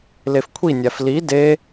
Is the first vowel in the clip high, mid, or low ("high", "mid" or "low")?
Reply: mid